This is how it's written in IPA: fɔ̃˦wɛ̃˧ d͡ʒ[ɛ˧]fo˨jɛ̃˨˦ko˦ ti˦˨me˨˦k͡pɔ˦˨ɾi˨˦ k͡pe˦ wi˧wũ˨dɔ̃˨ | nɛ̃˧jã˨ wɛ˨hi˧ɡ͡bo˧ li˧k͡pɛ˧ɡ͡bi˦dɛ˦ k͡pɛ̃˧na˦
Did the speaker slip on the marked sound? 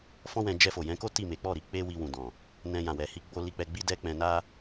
no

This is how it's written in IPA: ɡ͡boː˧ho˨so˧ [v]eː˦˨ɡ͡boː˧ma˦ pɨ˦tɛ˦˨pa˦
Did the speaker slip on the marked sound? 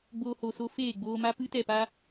yes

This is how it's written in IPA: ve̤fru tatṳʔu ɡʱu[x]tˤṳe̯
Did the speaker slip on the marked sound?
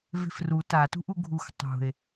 no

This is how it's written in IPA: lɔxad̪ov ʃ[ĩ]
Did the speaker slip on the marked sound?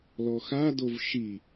yes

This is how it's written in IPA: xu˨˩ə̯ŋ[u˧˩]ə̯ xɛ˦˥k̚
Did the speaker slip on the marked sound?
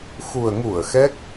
no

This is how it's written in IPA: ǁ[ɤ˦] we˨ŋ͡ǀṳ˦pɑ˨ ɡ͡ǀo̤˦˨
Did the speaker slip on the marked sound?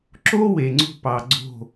yes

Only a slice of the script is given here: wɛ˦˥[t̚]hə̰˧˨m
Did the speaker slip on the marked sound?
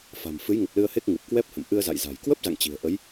yes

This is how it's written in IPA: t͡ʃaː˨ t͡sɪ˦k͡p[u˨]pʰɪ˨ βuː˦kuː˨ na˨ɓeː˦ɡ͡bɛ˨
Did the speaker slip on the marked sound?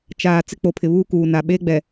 yes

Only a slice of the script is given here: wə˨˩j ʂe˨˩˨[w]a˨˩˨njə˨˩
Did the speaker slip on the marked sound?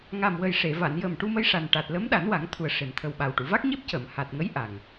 yes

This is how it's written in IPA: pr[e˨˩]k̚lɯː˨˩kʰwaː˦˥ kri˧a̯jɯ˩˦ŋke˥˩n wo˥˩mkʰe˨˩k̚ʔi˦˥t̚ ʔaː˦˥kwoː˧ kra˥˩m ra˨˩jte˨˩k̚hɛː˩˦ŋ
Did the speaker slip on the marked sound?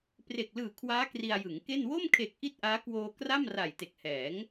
no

